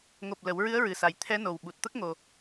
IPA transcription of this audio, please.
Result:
ŋ o˨˩ p̚ l ə˨˩˦ w ɹ ɨ˧˥ ə̯ ɹ ɨ˨˩ s a˨˩ j t̪ʰ ɛ˧˥ n o˨˩ w ɓ u˨˩ t̚ t̪ ə˦˥ k̚ ŋ o˧

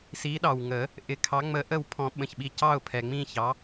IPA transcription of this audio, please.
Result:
s i˨˦ ɗ ɑ˩ w ŋ ə˨˩˦ | ʔ ɪ˨˩˦ kʰ ɑ˨˦ ŋ͡m ə˨˦ ʔ ə˦˨ w pʰ ɔ̃˨˩˦ ɓ ə̃˩˧˩ ç ɓ i˦˨ c ɑ˦˨ ʊ̯ pʰ ɛ˩ ŋ͡m ĩ˦˨ ç ɑ˨˦

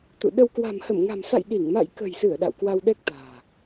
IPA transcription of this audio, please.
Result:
t̪ ṵ˧˨ ɗ ə˧ w k w a̤˨˩ m h ə˧˩ m ŋ a̤˨˩ m s a̰˧˨ j ɗ i˧˩ ŋ m a̰˧˨ j k ə̤˨˩ j s ɨ˧˩ ə̯ ɗ a̰˧˨ w k w a˧ w ɗ ɛ˦˥ k̚ t̪ a̤ː˨˩

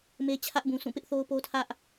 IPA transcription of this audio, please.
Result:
m e˦ t͡ɕʰ ä˦ ʔ b ũ˨ s ũ˦˨ p ɪ˦ ʔ θ o˦ ʊ̯ p o˦ tʰ ä˦ ʔ

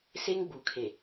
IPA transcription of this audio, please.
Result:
s e˦ ŋ ɡ͡b u˨ kʰ e˨

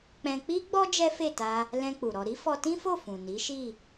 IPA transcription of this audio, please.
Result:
k͡p ɛ̃˧ k͡p i˦ ɡ͡b ɔ˦ d͡ʒ ɛ˦ f e˦˨ t a˧ | l ɛ̃˧ k͡p u˨ ɾ ɔ˧ ɾ i˦ f ɔ˧ t ĩ˦ f o˦˨ f ũ˨ n i˨˦ ʃ i˦˨

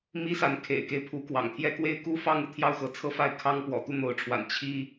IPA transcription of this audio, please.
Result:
m i˦ s a˨˦ n kʰ ḛ˨˩ ɪ̯ k e˦ ɪ̯ pʰ u˨˦ k w ɑ̰˨˩ ŋ t̪ʰ j ɛ˦ k w e˦ ɪ̯ k u˦ f ɑ˦ ŋ u˨ t̪ʰ j ɑ˥˨ ʊ̯ x ɤ˨˦ t͡sʰ ɤ˦ f a˥˨ ɪ̯ kʰ ɑ˦ ŋ p w ɔ̰˨˩ t̪ u˥˨ n̪ o˨˦ ʊ̯ ʈ͡ʂʰ w a̰˨˩ n t͡ɕʰ i˦

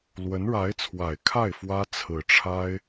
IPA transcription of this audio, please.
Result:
l w ə˧˥ n ɻ a˧˥ ɪ̯ t͡sʰ w a˨˩ ɪ̯ kʰ a˥˩ ɪ̯ f w ä˥ t͡sʰ ɹ̩˨˩ ʈ͡ʂʰ a˥ ɪ̯

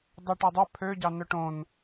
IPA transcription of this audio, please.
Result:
dˤ ɛ ʈ æ dˤ œ pʰ ø ɟ ɑ n œ ʈ õ n

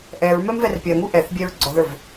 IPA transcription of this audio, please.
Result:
ʔ ɛ ɹ m ɛ m v ɛ r pʲ ɜ ŋ u ʔ ɛ θ bʲ ɛ ɹ ɡ͡ǀ ɔ ð ə˞ v

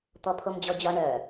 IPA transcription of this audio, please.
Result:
t̪ ɔ pʰ o m d͡ʑ ɔ d͡ʑ ɒ ɳ œ

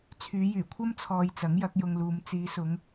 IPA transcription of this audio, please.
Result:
t͡sʰ yː˨˧ j yː˨˩ kʷʰ ɐ˥ m t͡sʰ ɔː˧ j t͡s ɐ˨˥ ŋ j ɐ˨˥ k̚ j ʊ˧ ŋ l uː˨˧ m t͡s iː˨˧ s ʊ˨˧ ŋ

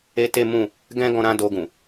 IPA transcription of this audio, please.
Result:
e˦ t e˦ m ũ˦˨ | ɡ ɛ̃˦ ɡ ɔ̃˧ ɾ ã˦ d o˧ ɡ ũ˨

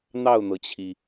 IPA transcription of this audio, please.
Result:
n̪ ɑ˥˩ ʊ̯ n̪ ɤ˩ t͡ɕʰ i˩

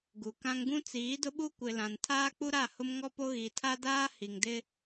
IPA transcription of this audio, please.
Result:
ɡ u˨ k ã˦ ŋ ɡ ũ˦ t͡s iː˨˦ d ʊ˦ ɓ u˦ kʷ ɪ˨ l ã˨ n tʰ aː˦ k͡p u˦ ɾ a˦˨ h ʊ˦ m ŋ ɔ˦ p o˦ ɣ i˨ tʰ a˦ d aː˦ h i˨ ŋ d ɪ˦

